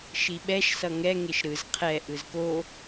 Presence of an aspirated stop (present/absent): present